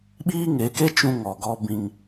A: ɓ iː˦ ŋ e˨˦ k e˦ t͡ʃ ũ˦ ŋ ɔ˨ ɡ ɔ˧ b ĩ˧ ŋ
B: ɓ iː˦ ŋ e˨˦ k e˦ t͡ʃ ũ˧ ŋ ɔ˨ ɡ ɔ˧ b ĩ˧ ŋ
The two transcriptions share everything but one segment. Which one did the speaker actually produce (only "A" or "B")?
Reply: B